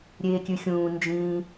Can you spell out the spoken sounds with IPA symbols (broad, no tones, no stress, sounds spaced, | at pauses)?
ɾʲ eː kʲ ʉ xʲ ũː n d͡ʒ ĩ